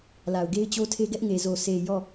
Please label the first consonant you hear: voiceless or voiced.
voiced